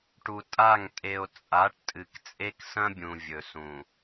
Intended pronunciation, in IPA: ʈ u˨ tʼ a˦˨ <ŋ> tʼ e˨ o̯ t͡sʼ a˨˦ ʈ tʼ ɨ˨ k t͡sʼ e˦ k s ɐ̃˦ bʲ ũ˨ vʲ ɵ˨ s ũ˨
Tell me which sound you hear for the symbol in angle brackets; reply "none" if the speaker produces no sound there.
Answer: ŋ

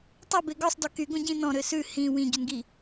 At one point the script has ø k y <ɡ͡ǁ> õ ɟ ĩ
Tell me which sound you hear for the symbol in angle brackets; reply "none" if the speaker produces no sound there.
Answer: ɡ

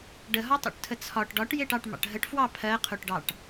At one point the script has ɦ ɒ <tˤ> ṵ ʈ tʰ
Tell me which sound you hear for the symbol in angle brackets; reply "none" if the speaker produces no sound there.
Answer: tˤ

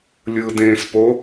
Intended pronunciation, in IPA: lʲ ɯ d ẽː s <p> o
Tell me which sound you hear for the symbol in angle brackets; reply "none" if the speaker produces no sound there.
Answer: p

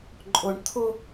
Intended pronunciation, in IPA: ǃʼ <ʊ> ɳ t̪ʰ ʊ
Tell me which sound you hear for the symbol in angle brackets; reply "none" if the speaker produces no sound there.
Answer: ʊ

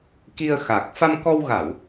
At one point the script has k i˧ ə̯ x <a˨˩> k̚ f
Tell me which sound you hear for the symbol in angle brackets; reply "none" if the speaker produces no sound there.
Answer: a˨˩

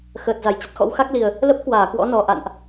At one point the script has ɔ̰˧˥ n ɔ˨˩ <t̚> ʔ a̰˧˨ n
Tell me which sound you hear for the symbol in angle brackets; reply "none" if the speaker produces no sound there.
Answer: none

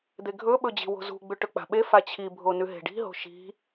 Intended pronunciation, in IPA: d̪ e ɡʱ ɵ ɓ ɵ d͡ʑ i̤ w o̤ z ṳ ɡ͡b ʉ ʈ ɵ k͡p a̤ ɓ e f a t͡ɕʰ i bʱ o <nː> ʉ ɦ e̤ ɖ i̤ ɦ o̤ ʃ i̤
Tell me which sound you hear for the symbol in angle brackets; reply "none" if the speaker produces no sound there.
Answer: n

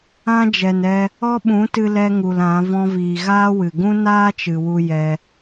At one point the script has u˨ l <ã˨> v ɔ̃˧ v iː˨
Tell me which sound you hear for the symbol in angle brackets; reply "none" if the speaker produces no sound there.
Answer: ã˨˦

